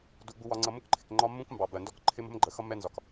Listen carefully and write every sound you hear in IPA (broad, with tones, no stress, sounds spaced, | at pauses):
d u˨ ɡ͡b u˨ w ɒ˨ ŋ͡ǀ ʌ˨ m ʊ˦ k ǃʰ ɪ˨ k ŋ͡ǃ ɒ˦ mː ũ˦ k m b ɑ˨ b ɜ˨ n d ɔ˦ k ǃʰ ɪ˦ m ə̤˦ m ɡ͡ǃ ə˨ x ʌ˦ mː ɛ˦ n z ɒ˨ k